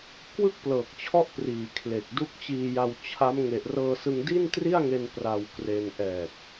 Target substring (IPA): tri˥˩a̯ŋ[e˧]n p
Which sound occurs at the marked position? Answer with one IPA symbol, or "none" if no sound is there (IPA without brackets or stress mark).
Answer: e˧